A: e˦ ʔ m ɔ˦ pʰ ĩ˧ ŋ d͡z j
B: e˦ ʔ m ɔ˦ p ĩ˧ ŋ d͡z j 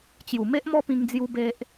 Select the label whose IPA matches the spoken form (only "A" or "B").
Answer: B